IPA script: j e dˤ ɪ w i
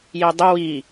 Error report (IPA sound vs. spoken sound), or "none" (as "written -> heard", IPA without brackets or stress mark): none